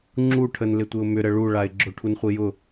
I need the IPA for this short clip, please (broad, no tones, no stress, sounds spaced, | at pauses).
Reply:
ŋ͡ǁ u ʈʰ ə n l ɪ tʷ ɪ ʊ̯ m ʏ ɾ ə ɭ u ɭ a ɪ̯ ɡ͡ǁ ʊ ʈʰ u n χʷ i j ʊ